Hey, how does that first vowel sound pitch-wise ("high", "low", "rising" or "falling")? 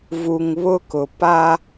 low